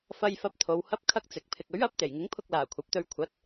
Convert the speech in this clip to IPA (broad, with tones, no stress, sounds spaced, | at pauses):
f ɐ˧ j f ɐ˧ p̚ t̪ʰ o˨˧ w h ɐ˧ p̚ kʰ ɐ˥ k̚ t͡s ɪ˨˥ k̚ pʰ ɪ˨ k̚ ɵ˨˥ ɥ ɐ˨˥ p̚ t̪ e˨˩ j ŋ ɪ˨˥ ŋ pʰ ʊ˧ k̚ l aː˨˩ kʷʰ ɐ˨˥ p̚ t̪ ɵ˧ ɥ kʷʰ ɐ˨˥ t̚